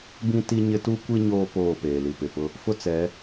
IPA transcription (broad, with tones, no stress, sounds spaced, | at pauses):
b ĩ˦ t i˦ ɲ ɪ˦ t u˦ kʷ i˦ ɲ oː˦ p oː˦˨ p eː˨ l i˨ p ɪ˨ p ʊ˦ | f ʊ˦ t͡s ɛ˨˦